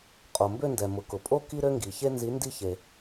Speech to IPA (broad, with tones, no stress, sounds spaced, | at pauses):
qʼ o˩ m b ø˥˧ n d ɛ˩ m ʊ˩ k ʊ˩ pʼ o˥ k i˥ ɾ ø˥ ŋ ɡ i˩ ç e˥ n z i˨˥ n d i˥˧ ç e˩